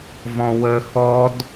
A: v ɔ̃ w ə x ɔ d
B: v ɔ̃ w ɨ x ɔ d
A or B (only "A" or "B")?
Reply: A